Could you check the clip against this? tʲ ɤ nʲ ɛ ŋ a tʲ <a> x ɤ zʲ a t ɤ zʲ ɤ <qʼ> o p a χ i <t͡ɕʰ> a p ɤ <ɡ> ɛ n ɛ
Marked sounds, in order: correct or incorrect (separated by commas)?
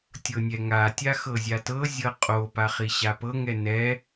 correct, correct, incorrect, incorrect